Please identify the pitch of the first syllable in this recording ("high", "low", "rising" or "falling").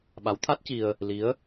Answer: rising